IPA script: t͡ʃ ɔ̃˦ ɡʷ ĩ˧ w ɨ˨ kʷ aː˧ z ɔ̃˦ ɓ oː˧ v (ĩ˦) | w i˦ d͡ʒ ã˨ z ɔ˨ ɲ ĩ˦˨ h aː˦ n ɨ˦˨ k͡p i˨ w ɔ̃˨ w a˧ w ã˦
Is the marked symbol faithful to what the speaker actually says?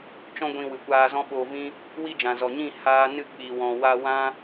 yes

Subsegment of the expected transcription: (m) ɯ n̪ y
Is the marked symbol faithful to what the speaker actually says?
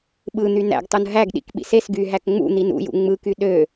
no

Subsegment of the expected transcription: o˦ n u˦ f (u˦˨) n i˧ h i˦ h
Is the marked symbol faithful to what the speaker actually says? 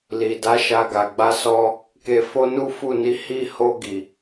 yes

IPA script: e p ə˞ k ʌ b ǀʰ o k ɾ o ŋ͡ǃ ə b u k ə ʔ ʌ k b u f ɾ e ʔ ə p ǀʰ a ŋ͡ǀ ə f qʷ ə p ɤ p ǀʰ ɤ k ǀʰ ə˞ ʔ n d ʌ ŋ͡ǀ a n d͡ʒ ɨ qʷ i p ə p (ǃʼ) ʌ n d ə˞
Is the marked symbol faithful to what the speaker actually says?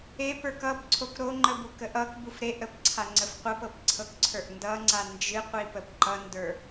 no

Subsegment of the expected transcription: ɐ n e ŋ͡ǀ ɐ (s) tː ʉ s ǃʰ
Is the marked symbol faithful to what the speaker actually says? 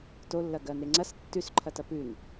yes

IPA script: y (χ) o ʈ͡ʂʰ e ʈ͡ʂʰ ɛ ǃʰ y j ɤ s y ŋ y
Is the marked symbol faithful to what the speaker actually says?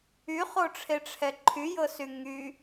yes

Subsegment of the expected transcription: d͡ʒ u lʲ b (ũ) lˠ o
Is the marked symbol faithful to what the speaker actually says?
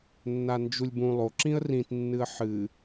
yes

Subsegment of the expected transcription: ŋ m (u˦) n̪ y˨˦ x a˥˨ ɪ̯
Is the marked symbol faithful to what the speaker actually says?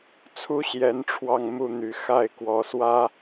yes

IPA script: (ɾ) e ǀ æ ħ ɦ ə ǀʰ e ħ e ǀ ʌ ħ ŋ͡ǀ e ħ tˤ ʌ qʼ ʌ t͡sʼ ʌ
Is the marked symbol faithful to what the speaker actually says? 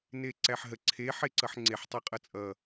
no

